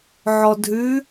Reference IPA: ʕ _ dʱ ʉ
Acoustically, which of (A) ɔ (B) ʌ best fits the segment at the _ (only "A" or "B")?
A